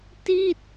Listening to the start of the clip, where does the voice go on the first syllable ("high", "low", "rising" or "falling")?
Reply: falling